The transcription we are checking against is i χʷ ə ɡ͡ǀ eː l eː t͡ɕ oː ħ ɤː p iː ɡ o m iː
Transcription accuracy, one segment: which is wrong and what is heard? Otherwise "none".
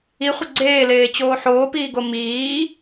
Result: ɤː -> oː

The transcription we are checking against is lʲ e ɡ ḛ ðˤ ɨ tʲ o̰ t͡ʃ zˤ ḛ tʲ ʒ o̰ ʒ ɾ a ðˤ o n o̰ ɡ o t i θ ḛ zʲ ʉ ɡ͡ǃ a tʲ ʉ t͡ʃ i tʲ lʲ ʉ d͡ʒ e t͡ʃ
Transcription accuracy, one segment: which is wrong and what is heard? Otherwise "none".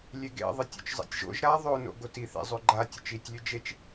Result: zʲ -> zˤ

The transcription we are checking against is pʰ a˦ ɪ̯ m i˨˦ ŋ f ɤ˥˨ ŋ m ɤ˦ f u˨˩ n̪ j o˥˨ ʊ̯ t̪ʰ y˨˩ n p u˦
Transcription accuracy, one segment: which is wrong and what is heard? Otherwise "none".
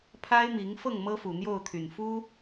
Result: p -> f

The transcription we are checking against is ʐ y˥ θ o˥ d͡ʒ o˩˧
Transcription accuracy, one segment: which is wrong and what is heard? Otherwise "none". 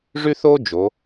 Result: none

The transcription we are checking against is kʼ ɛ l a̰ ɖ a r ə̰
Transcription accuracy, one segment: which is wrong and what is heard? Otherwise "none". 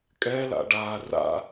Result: ə̰ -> a̰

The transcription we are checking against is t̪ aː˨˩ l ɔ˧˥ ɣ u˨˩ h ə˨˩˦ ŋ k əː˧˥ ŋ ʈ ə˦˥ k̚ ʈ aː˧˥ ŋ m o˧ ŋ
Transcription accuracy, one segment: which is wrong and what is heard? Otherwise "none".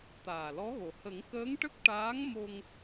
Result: u˨˩ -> o˨˩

